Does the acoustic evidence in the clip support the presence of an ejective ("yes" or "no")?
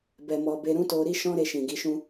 no